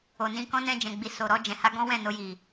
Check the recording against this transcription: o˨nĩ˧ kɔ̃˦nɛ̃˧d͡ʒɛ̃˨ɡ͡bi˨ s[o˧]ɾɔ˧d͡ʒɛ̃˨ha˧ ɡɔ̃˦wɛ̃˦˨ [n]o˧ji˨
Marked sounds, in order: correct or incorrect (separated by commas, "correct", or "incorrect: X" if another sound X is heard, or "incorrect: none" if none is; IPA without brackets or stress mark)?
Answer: incorrect: o˨, correct